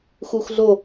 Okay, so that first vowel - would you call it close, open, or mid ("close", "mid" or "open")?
close